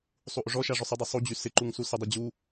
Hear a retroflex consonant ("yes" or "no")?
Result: yes